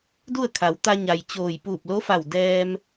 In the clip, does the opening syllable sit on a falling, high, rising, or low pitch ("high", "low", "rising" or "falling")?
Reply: falling